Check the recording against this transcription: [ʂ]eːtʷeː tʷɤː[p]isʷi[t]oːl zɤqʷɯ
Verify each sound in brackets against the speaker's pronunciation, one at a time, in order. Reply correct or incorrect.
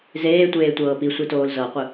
incorrect: z, correct, correct

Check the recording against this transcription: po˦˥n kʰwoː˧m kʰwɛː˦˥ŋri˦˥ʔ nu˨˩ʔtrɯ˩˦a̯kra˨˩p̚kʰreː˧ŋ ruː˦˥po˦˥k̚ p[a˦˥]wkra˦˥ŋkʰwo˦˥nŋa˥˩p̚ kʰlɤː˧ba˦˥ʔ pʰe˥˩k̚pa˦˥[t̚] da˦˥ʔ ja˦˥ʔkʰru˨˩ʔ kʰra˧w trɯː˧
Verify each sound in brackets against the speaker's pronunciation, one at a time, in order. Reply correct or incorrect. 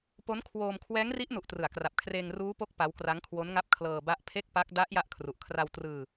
correct, incorrect: k̚

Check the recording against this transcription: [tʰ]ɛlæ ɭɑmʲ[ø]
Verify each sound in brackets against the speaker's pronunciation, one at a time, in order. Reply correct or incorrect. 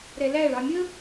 incorrect: ɾ, incorrect: ə

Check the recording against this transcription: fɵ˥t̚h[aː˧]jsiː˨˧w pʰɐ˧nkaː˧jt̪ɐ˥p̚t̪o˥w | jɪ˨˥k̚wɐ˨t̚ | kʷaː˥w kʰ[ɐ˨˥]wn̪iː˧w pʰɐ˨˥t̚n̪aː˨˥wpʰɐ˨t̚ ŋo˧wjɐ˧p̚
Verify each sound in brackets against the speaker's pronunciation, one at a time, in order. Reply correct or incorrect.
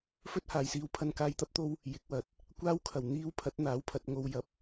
incorrect: aː˨, incorrect: ɐ˨˩

